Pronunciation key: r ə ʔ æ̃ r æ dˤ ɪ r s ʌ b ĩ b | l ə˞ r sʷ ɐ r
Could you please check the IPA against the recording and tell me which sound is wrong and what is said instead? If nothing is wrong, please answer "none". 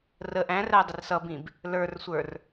ɐ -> ə˞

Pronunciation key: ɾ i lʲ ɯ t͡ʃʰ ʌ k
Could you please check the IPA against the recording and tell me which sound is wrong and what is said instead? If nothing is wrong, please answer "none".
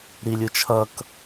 none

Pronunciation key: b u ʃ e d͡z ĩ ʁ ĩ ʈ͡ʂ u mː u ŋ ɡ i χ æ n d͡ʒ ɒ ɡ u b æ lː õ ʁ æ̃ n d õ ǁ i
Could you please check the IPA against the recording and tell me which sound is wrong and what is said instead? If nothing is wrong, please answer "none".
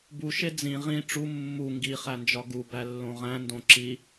none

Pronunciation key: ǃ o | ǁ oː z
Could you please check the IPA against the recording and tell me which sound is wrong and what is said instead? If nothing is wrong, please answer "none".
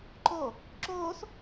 z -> s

